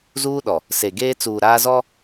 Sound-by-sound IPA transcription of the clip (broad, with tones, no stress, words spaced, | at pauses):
zuː˦ɗɔ˨ | se˨ɡeː˦ t͡suː˨ɾaː˦zɔ˦